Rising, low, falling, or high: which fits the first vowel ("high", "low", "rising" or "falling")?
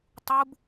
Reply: high